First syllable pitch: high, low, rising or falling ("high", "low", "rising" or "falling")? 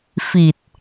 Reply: low